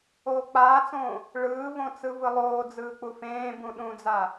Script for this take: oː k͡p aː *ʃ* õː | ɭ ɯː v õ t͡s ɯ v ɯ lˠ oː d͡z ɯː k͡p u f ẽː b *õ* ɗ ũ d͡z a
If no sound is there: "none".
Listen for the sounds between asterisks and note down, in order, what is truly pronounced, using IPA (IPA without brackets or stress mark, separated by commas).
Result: t͡s, ũ